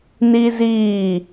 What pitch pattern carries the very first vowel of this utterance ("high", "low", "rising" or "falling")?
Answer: high